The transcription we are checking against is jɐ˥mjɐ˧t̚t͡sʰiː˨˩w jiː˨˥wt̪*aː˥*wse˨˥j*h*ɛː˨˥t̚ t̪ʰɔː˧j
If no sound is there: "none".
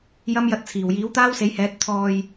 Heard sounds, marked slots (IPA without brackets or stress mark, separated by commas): aː˥, h